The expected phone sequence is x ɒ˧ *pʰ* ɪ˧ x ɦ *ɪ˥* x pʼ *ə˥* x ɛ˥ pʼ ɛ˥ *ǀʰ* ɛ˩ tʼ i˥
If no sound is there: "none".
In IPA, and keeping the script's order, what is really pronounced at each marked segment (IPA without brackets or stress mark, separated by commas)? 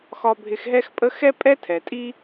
bʱ, ɛ˥, ə˥, tʰ